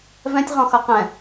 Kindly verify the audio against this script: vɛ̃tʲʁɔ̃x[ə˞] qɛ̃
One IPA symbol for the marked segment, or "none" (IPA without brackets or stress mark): ʌ